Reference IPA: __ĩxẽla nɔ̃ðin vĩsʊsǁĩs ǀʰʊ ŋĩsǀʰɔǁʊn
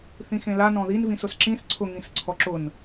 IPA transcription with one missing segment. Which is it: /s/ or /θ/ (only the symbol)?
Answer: θ